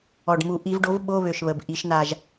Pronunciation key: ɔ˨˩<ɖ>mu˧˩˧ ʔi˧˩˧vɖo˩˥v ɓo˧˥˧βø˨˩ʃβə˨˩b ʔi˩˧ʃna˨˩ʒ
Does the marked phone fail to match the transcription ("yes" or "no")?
no